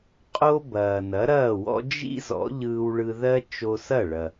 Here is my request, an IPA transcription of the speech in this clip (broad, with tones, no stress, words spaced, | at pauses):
qʼo˥ bɐː˩ nɐ˩˥ɾɐː˥˩wɔ̰˥ d͡ʒḭ˥ zɔ̰˩˥ ʎɯː˧wɭɯ˧ðɜ˥ t͡ʃo˧sɐ˥˩ ɭɐ˩